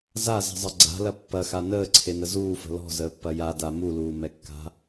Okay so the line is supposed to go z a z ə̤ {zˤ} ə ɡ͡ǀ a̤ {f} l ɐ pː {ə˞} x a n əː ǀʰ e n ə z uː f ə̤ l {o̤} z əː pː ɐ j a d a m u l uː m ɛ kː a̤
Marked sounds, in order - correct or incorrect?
correct, incorrect: none, incorrect: ɐ, incorrect: ɔ̤

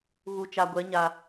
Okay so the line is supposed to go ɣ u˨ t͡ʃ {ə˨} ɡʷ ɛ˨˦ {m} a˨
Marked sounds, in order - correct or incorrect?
incorrect: a˨, incorrect: ɲ

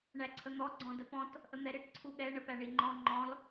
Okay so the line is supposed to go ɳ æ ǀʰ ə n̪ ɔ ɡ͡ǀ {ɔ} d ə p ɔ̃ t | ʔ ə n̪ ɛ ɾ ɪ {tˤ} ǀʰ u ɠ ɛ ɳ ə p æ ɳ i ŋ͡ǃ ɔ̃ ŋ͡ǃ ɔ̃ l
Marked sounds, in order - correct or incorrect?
incorrect: ɔ̃, incorrect: ʈ

